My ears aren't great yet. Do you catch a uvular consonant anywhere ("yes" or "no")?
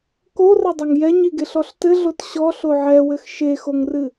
no